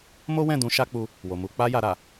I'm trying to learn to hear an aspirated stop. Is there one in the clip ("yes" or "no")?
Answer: no